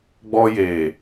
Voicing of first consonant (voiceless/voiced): voiced